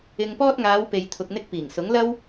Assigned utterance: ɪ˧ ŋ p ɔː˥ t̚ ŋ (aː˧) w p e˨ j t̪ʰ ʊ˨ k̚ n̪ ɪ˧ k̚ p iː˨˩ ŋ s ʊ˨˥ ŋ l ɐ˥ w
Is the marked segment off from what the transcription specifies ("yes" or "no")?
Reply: yes